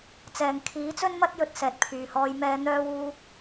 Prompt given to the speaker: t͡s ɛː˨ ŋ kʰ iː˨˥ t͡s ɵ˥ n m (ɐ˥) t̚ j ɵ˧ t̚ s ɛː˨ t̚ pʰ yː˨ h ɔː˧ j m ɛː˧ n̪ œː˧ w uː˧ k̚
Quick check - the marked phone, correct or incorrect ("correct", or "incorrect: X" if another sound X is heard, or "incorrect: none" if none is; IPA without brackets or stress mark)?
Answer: correct